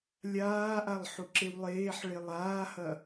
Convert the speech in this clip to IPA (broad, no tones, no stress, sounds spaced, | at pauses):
lʲ aː ʔ a lˠ ħ u ǁ e w lˠ eː ħ ɭ e lˠ aː h ɐ